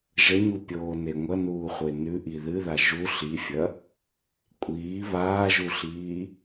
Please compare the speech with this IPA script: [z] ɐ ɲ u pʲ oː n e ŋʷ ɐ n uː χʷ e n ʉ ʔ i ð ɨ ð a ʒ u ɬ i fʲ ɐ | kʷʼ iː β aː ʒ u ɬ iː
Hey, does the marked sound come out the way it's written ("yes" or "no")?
no